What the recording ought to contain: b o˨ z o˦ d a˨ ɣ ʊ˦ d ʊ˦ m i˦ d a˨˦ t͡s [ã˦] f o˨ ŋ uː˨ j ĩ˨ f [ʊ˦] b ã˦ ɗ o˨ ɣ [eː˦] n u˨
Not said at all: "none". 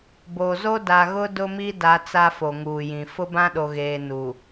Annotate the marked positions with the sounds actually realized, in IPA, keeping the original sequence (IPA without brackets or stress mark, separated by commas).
a˦, ʊ˦, eː˨